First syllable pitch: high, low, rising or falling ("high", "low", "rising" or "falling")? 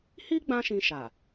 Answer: high